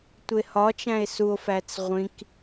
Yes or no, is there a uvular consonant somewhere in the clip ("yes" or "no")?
yes